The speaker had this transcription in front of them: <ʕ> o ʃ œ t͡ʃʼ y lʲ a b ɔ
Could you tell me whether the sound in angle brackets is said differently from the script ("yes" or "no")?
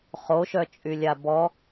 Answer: yes